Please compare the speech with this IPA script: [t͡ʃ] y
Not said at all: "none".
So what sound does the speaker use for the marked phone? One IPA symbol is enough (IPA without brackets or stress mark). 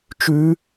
t͡ʃ